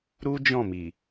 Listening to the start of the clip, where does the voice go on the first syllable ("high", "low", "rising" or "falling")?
high